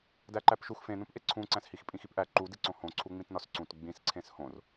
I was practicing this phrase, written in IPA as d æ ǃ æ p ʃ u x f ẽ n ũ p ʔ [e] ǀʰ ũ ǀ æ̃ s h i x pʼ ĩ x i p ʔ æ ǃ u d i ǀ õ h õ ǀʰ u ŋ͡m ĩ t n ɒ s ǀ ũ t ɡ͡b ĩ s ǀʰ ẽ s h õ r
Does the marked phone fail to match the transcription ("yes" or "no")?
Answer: no